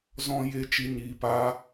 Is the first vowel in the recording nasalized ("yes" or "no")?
yes